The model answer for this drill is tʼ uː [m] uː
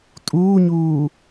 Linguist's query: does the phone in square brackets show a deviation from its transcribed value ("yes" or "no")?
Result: yes